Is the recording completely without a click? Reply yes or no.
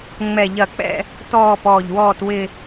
yes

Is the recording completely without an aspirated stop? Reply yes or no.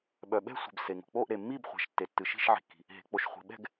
yes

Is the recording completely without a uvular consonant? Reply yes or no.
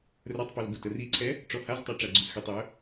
yes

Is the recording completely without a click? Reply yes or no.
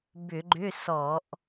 no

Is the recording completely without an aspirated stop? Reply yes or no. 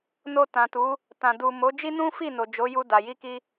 yes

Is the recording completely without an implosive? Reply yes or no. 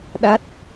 no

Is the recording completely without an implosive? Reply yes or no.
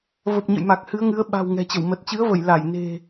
no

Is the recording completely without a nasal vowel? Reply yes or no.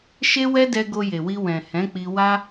no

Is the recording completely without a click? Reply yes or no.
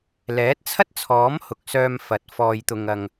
yes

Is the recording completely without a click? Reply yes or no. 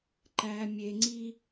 no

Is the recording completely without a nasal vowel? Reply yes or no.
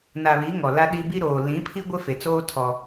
no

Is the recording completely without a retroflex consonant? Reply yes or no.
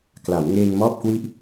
yes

